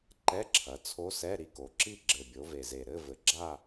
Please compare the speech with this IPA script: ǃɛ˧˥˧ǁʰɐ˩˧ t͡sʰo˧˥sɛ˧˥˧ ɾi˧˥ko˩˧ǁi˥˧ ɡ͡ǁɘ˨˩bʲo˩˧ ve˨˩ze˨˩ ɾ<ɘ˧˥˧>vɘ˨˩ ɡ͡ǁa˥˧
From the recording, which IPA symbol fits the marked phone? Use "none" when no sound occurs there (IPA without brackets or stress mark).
ɘ˧˥˧